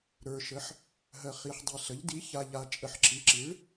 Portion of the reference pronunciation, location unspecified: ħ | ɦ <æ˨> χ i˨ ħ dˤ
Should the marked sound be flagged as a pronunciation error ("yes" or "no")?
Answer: yes